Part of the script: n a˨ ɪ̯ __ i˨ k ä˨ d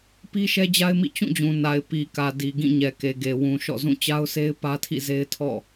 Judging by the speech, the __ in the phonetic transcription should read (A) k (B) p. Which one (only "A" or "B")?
B